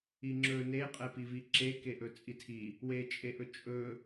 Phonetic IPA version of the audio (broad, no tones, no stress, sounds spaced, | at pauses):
i ŋ͡ǁ ɵ n e qʼ ɛ p i v i ǁ e k e ʔ ɵ t͡sʼ i tʰ i | w e t͡ʃʼ e ʔ ɵ t͡ʃʼ ɵ